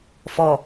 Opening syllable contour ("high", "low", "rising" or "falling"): low